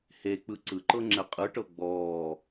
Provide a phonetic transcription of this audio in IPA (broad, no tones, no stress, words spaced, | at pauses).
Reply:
hek͡pɯ ǀɯǃɤŋ͡ǁɛ qʼɯʈɤ ɡ͡bɔː